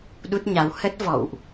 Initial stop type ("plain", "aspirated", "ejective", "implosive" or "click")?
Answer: implosive